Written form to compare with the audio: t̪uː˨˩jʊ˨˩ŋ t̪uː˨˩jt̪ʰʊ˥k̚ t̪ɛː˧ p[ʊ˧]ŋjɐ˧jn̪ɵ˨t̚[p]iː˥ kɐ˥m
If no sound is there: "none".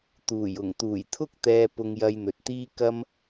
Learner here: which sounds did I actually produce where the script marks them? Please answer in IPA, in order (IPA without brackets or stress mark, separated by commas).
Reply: ʊ˧, t̪